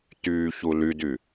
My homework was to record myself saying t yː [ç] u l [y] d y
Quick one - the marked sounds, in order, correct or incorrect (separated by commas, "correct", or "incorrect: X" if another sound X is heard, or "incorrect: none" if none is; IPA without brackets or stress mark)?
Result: correct, correct